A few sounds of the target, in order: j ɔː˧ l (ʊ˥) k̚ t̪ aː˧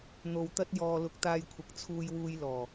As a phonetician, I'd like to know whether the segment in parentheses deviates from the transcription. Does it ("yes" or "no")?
yes